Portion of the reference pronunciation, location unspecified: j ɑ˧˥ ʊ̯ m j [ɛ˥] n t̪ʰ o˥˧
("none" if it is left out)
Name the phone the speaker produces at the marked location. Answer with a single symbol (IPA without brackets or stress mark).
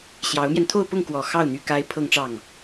ɛ˧